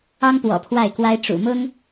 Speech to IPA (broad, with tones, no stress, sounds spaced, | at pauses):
ɑ˥ ŋ p w ɔ̰˨˩ pʰ w a˥˩ ɪ̯ k w a˥ ɪ̯ ʈ͡ʂ ṵ˨˩ m ʊ˥ ŋ